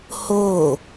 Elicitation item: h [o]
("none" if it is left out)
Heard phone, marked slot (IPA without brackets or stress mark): o